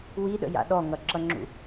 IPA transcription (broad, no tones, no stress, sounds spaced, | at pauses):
w i ɗ ə̰ j a̰ ɗ ɔ ŋ ʌ ǁ ʌ ŋ͡ǁ ṵ